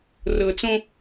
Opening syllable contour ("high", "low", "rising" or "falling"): low